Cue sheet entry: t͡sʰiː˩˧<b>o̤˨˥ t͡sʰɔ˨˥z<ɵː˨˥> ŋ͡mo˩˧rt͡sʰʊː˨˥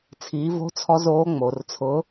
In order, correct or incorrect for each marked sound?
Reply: incorrect: v, incorrect: oː˨˥

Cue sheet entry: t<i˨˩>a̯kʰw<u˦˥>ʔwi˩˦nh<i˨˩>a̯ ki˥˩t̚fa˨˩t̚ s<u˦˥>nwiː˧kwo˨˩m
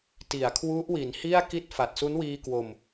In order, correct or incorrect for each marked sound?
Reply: incorrect: i˩˦, correct, incorrect: i˥˩, correct

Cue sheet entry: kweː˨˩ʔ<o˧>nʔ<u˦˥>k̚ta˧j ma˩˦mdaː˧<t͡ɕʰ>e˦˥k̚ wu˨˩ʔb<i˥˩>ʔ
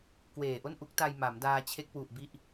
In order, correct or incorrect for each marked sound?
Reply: incorrect: o˥˩, correct, correct, incorrect: i˦˥

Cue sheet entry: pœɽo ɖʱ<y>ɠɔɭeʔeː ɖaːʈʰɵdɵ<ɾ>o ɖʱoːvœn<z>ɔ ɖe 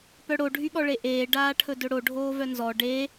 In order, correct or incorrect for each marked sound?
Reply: correct, incorrect: ɽ, correct

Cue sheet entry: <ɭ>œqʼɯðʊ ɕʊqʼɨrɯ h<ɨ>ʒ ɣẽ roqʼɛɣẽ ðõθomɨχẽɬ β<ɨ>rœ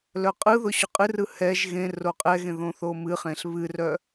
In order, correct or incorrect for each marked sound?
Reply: incorrect: l, incorrect: ɛ, correct

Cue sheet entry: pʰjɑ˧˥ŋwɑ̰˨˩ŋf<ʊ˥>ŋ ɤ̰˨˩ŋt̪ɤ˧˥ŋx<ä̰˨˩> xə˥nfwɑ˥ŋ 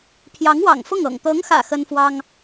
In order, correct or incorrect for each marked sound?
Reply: incorrect: ʊ˥˩, correct

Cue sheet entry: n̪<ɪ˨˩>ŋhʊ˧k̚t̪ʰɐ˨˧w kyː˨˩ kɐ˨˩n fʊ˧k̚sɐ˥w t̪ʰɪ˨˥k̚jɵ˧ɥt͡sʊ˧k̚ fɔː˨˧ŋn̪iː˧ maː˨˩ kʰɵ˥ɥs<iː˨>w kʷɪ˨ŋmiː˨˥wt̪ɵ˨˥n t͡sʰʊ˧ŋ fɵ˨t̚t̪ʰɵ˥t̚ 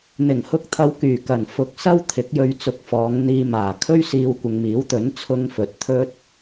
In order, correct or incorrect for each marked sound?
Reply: correct, incorrect: iː˧

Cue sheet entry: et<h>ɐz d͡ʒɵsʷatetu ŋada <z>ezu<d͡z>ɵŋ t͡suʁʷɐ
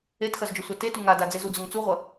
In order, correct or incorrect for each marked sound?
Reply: incorrect: x, incorrect: d͡z, correct

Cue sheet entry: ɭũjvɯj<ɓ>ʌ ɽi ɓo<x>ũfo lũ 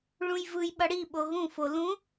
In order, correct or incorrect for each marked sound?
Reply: correct, incorrect: ɣ

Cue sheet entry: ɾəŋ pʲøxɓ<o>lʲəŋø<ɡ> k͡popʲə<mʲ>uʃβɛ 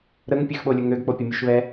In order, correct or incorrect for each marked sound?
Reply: correct, correct, correct

